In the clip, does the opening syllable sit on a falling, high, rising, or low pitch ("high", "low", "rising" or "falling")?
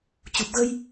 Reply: low